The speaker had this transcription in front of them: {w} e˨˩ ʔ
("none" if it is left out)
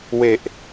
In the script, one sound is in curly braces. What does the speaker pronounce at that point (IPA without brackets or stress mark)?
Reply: w